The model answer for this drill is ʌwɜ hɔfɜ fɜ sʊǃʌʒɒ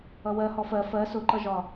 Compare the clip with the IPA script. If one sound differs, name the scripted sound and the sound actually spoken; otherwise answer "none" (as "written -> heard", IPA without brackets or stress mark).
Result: none